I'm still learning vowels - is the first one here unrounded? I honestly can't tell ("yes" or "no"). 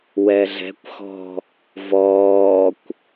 yes